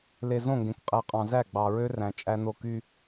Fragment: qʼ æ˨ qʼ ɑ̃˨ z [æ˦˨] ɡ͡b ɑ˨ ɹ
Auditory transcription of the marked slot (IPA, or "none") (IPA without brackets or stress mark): æ˦˨